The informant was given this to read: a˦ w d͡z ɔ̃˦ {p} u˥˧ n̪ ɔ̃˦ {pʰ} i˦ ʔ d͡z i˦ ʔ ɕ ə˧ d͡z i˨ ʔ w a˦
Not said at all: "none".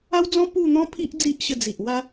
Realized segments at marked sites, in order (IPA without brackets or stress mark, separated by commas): p, pʰ